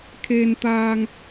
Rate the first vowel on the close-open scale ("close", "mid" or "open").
mid